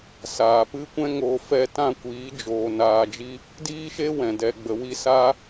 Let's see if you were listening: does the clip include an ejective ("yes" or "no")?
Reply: no